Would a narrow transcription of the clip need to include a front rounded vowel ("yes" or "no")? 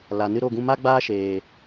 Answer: no